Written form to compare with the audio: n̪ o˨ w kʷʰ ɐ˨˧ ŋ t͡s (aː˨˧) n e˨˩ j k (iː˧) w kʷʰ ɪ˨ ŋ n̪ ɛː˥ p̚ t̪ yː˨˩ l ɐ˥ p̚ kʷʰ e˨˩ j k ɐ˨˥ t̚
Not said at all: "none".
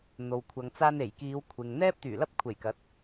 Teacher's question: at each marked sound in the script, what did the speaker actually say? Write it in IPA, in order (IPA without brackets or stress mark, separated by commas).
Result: aː˧, iː˨˧